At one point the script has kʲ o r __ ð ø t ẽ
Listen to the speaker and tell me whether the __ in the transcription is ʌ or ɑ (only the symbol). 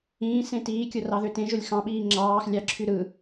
ɑ